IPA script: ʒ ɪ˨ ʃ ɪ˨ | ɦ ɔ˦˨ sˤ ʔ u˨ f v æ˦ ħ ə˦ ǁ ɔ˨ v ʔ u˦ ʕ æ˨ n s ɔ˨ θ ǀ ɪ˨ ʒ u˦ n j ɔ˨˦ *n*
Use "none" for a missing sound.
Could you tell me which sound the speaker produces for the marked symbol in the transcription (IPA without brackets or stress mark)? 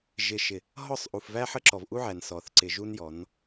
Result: n